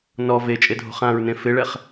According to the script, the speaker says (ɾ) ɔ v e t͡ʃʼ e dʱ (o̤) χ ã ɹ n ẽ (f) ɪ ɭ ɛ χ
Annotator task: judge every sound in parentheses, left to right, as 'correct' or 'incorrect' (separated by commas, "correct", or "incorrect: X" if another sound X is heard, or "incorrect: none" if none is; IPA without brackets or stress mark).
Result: incorrect: n, correct, correct